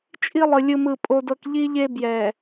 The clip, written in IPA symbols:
t͡ʃʼ i˦ lˠ ɯ˨ lʲ ɯ˦ m ɯ˦˨ pʼ o˦ d ɤ˦ k ʎ i˦ ʎ e˦ b j ɛ˨

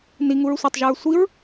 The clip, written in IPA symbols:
n i ŋ u ɹ sʷ æ tˤ ʒ u ɹ sʷ i ɹ

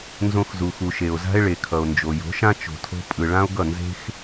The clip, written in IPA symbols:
n z õ˧ x z u˩ x u˩ ʃ e˩ o̯ z a̤˥ e̯ ɭ e˩ kʰ ʌ˩ o̯ n d͡ʒ o˩ j o̤˩˥ ʃ ã˥ t͡ʃ o̤˩ tʰ o̤˧ pʼ ɯ˩ ɭ ã˥ o̯ ɡ ʌ˥˩ n z e̤˥ x

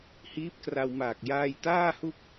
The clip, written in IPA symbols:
h iː˦˥ p̚ k r a˧ w m aː˨˩ k̚ j aː˧ j t aː˥˩ h u˥˩ k̚

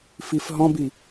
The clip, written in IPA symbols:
f i f ɦ ɔ̃ b i

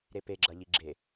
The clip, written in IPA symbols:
ɾ e p e ɡ͡ǁ ɐ ʎ i ɡ͡ǁ e

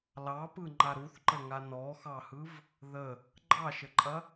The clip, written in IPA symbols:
l ɑ p ɯ ŋ͡ǃ a ɾ u θ ǃ ə ŋ a n ɔ x ɑ h ɯ v | ð ə | ɡ͡ǃ ɑ ʃ ə ǃʼ ɐ

